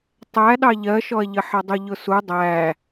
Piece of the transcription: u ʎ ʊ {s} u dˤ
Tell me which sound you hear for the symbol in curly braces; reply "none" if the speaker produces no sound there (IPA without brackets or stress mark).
s